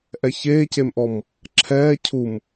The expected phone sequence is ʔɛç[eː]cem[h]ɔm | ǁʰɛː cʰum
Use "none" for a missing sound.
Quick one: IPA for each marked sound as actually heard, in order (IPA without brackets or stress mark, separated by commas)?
eː, ʔ